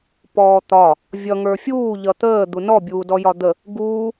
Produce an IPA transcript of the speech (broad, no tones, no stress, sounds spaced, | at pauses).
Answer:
p ɔː t̪ ɒ | vʲ ʌ ŋ ə˞ fʲ uː ʎ ʌ t̪ əː d̪ u n ɔ bʲ uː d ɔ j ɒ d̪ ə | ɡ uː